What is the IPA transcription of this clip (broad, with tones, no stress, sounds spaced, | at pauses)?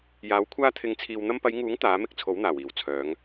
j aː˨˥ w kʷʰ aː˥ t̪ʰ ɪ˧ ŋ t͡sʰ iː˧ w n̪ ɐ˧ m p ɐ˨˧ j ŋ uː˨˥ ŋ t̪ aː˨˥ m ɪ˥ k̚ t͡sʰ o˨˥ w n̪ aː˨˩ w iː˨˩ w t͡sʰ œː˨˧ ŋ